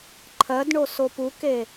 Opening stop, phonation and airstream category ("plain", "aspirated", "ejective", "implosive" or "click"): click